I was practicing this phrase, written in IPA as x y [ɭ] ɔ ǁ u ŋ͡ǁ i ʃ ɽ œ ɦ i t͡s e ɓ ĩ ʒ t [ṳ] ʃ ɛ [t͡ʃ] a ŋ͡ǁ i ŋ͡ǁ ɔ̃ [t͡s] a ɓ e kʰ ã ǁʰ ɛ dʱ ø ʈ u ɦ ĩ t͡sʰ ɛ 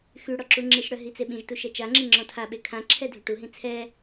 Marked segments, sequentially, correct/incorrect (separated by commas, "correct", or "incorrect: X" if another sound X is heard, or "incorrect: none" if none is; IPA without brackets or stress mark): incorrect: ɽ, incorrect: u, correct, incorrect: tʰ